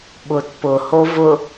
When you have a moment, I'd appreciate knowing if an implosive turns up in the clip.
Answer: yes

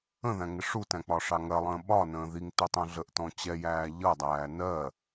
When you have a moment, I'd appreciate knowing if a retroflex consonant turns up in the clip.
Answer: yes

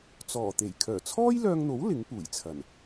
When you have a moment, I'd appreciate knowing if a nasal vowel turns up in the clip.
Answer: no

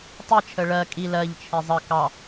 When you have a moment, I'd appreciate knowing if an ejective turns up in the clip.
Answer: yes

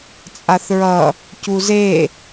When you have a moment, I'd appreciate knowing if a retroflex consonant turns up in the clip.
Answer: no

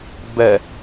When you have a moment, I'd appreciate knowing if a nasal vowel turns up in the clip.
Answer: no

